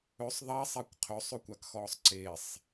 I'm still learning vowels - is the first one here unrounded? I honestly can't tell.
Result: no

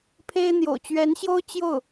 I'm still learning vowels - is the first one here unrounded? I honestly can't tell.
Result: yes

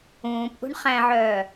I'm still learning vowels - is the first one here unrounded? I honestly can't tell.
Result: no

